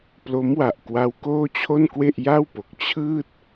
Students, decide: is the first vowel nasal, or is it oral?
oral